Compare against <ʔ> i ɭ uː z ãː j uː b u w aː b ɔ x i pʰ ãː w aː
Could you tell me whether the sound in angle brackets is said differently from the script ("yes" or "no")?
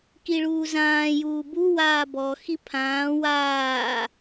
yes